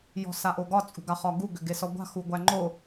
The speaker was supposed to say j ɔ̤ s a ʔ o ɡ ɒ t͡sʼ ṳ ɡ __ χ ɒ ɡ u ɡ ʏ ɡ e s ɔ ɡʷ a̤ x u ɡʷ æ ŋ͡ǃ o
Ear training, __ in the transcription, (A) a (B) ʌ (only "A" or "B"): A